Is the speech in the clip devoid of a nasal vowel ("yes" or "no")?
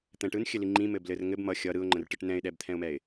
no